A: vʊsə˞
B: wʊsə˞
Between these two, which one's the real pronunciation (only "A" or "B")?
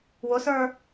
B